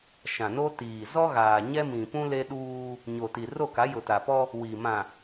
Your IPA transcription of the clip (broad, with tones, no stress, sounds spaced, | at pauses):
ʃ ã˨ n o˦ t iː˨ z ɔ˦ ɣ aː˨ ɲ ɛ˦ m ĩ˨ p ũ˦ l e˦ ɗ uː˦ | ɲ o˨ t i˨ r o˦˨ k a˨˦ j ʊ˨ t a˨ p ɔ˦ | w i˨ m ã˨